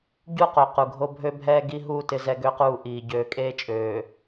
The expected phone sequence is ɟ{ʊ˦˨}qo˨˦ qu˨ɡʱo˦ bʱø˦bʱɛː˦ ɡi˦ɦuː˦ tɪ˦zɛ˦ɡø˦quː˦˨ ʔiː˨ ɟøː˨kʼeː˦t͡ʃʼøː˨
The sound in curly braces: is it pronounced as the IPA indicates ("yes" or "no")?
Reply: no